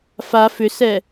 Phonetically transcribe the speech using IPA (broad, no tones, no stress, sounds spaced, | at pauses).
f a f ʏ s ɛ